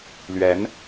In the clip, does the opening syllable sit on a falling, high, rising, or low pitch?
rising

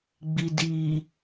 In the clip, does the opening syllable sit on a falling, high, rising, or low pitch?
low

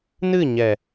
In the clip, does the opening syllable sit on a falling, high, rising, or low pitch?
falling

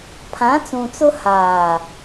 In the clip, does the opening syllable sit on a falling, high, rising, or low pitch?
rising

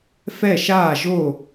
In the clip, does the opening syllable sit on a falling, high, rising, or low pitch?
falling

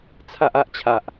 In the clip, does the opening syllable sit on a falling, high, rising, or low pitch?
high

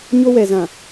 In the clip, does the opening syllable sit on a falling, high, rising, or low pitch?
high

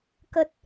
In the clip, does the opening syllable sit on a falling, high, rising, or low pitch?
low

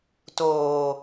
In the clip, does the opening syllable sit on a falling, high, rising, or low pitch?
low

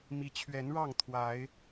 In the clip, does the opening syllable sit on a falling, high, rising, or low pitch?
rising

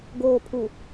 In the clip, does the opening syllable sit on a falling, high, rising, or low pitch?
low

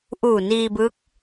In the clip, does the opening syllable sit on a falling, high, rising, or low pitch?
low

